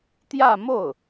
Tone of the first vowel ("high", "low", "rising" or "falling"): falling